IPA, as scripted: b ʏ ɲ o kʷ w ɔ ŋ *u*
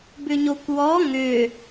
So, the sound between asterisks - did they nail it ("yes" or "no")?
no